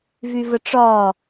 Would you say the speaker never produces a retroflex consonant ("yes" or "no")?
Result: no